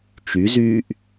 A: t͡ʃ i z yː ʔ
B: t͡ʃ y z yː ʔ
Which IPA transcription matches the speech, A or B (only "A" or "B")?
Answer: B